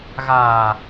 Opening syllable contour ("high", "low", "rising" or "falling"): low